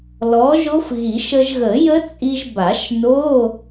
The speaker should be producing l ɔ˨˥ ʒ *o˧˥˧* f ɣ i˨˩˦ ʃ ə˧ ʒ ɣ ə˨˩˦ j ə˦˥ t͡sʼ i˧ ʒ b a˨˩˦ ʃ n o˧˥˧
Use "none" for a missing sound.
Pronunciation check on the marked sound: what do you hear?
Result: o˦˥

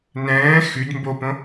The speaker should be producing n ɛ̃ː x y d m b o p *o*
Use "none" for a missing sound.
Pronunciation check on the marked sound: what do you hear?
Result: õ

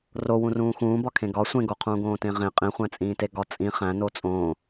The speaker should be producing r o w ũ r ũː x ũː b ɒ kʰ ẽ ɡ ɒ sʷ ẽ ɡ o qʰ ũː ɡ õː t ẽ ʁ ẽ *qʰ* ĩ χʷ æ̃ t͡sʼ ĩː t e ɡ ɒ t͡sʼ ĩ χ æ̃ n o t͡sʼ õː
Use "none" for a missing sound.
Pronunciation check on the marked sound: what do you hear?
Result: qʼ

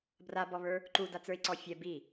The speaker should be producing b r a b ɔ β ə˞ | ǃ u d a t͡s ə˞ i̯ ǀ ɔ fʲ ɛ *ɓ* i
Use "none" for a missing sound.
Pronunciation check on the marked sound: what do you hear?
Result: b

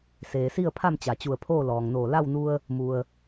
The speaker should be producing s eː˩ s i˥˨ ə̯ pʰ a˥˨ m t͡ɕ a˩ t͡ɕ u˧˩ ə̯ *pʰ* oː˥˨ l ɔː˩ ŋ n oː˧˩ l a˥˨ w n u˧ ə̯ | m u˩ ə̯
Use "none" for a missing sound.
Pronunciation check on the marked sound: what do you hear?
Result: pʰ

